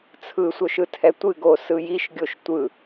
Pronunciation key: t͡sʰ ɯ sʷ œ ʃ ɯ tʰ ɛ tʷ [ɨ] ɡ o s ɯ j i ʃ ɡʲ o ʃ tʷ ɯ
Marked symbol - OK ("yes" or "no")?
yes